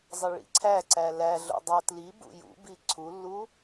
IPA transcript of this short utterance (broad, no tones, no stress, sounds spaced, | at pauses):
zˤ ə ɭ ḭ ǀʰ æ ǀ æ l æ ɮ o̰ dˤ o t l i b ṵ j ṵ b i ǀʰ u lː u